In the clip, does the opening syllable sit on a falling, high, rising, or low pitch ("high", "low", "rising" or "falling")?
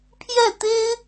falling